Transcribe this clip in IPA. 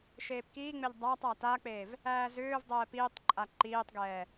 ʃ eː p k iː ŋ͡m e ʎ dˤ æ tˤ a t a k͡p eː v | æː z ʏː v dˤ ɛː p iː tˤ ǃʼ a ǃ iː tˤ ɡ ɛː

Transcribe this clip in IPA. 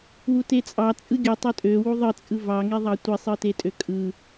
w u t e t͡sʼ ɑ t͡sʼ ɯ ɡʲ u tˤ ø tʼ ø w u ðˤ ɯ t͡sʼ ɯ v ɑ ŋ e ðˤ ɑ tʷ i sˤ ɯ t e tʼ ø kʼ ɯ

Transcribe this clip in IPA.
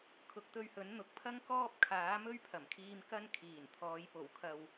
kʰ ʊ˨˥ k̚ t̪ ɵ˧ ɥ h ɵ˨˥ n n̪ ʊ˨ k̚ pʰ ɐ˥ ŋ k ɔː˥ p̚ kʰ aː˨˥ m ɵ˥ ɥ pʰ ɐ˨˩ m kʰ iː˧ m k ɐ˥ n kʰ iː˨˩ n t̪ʰ ɔː˨˧ j p o˨˩ w kʰ ɐ˨ w

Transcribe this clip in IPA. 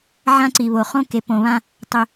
ʕ ã˦ ǀ i˨ β o˨ χ õ˦ k e˨ p õ˨ β ã˦ | tˤ ʏ˨

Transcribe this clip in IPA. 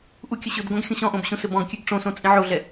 ʔ u kʲ ə ɕ ʏ b ɡ õ ɡ xʲ õ ɕ ɔ̃ ʔ õ b ɕ ũ s ɘ b ɔ̃ ɡ kʲ ʉ ɡ ʈ͡ʂ õ s õ t͡sʼ ĩ ʕ o ɮ ɛ

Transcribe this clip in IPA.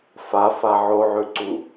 f a f a ʕ o ʕ ʉ ǀ u

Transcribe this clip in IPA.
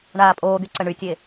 ɳ aː pʼ oː d̪ y ǀ ə ɳ y tʲ e

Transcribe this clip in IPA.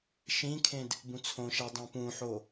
ʃ ĩ kʰ ẽ d | b ũ t͡sʰ õ ʃ ɛ dˤ ũ p ũ ħ o

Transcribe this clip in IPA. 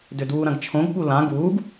d ʏ d uː ɾ ɐ̃ ɡ t͡ʃʰ õ ɡ ɓ u l ã ɡ uː ɡ

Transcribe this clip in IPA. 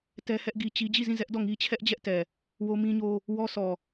t ɛ˦ h ɛ˦ ʔ ɡ i˦ t͡ɕ i˦ d͡ʑ i˦˨ z ĩ˦˨ z ɛ˦ ʔ d ɔ˦˨ ŋ i˦ t͡ɕʰ ɛ˦ ʔ d͡ʑ ɛ˦ ʔ t ɛ˨ | w o˦ m ĩ˦ ɲ o˦ | w ɔ˦ sʰ ɔ˨

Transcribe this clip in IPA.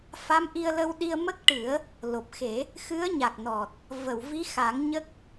f a˧˥ m ʔ i˧ ə̯ l ə˧ w ɗ i˧ ə̯ m ə˦˥ k̚ ʈ ɨ˨˩˦ ə̯ | l o˨˩ p̚ x e˨˩˦ | x ɨ˧˥ ə̯ ɲ a˨˩ k̚ n ɔ˨˩ t̚ | v ə˨˩˨ w v i˧˥ x a˨˩˦ ŋ ɲ ə˦˥ k̚

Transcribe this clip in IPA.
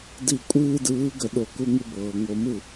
d i˧˩˧ kʷʼ ɨː˦ d ɯː˨˥ ɡ ə˧˩˧ ɗ o˧˩˧ k u˦ ŋ ɨ˦ b ɤː˩ ŋ o˧˩˧ m ɯ˥˩

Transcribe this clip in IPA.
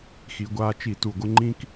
x i˩˧ ɡʷ aː˧ t͡ʃ i˧˩˧ t u˨˩ ɡʷ ə˧ ŋ͡ǃ ĩ˧ k

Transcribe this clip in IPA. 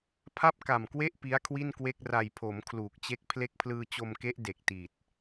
pʰ a˥˩ p̚ k a˨˩ m k w e˥˩ ʔ p i˦˥ a̯ kʰ w i˥˩ n k w e˥˩ k̚ r a˨˩ j pʰ o˩˦ m kʰ l uː˨˩ k̚ t͡ɕ e˦˥ k̚ pʰ l e˦˥ k̚ pʰ l ɯː˧ t͡ɕ o˧ m k e˦˥ ʔ d e˨˩ k̚ t i˨˩ t̚

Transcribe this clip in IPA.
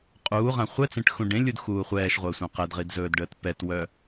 qʼ uː ʁ ã χʷ ɛ t͡s ẽ ʈ x ũ ɖ ẽ lʲ u d x uː χʷ ɛː ʃ ʁʷ əː sʷ ã q ɛ d ʁ i d z ɵː d ɖ əː t p ɛ t w œ

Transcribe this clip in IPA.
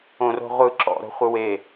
õ r o̤ ʁʷ ɯ ǁ ɔ̰ ɾ o̤ χʷ ɯ w e

